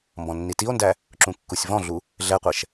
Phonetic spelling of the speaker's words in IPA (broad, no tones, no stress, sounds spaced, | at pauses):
m b ɔ̃ nː i t i o̯ n d æ | ǁ ũ kː u sʲ v ɔ̃ ɮ u | ɮ ɛ qʷ ɛ ʃ